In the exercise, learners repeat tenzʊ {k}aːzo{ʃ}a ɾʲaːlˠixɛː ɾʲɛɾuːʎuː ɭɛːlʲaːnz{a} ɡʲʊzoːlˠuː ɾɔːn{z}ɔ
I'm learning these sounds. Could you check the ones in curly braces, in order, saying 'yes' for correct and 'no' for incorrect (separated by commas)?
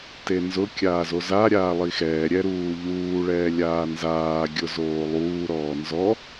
no, no, no, yes